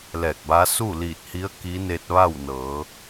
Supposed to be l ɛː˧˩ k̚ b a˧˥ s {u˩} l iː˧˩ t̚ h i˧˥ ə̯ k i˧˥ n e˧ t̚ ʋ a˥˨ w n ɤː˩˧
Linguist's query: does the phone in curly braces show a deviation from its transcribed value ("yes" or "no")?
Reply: yes